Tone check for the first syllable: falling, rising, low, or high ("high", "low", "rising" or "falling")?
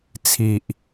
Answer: low